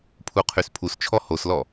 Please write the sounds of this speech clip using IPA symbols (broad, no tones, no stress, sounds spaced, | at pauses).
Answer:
pʰ u qʰ y s pʰ u s t͡ʃʰ ɔ h o s l ɔ